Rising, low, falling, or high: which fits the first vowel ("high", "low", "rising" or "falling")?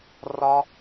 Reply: high